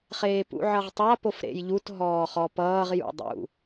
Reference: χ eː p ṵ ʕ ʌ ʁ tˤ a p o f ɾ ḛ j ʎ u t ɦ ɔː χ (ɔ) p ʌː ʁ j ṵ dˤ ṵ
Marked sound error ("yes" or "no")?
no